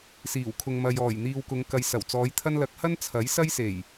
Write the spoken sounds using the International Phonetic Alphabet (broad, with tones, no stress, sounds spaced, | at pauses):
s iː˨˩ w kʰ ʊ˨ ŋ m ɐ˨ j ɔː˨˩ j n̪ iː˨ w k ʊ˨˧ ŋ k ɐ˨ j s ɐ˨˩ w t͡s ɔː˨˧ j t̪ʰ ɐ˧ n l ɐ˨ k̚ h ɐ˥ n t͡sʰ ɐ˨˥ j s ɐ˥ j s e˨˩ j